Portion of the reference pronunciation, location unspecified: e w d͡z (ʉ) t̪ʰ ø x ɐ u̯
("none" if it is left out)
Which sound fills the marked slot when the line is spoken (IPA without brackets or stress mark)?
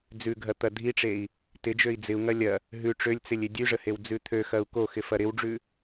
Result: ʉ